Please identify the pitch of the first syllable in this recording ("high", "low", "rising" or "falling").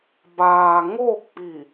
low